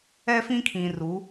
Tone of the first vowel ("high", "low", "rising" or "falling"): high